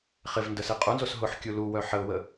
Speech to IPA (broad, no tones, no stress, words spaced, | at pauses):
χɪv ndəsiqʼunzos ɦʊħkʲu lu wœħəʊ̯wə